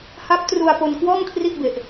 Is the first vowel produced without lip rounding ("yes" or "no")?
yes